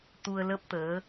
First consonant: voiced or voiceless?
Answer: voiceless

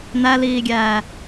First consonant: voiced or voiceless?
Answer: voiced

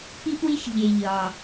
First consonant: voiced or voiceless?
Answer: voiceless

